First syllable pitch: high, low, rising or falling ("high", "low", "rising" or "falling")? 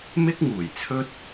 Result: high